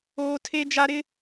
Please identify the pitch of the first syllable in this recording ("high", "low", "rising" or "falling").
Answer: high